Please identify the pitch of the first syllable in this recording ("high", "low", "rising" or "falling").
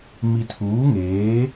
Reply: low